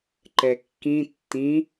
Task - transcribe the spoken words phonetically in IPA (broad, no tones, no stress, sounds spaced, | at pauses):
ǃ ɛ kː ĩ tː ĩ